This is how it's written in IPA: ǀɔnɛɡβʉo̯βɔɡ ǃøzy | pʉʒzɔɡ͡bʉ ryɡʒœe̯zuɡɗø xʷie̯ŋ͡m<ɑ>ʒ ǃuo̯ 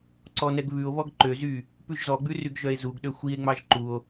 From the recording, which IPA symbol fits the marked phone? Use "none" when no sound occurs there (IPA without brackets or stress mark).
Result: ɑ